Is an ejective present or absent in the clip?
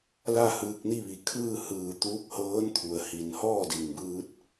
absent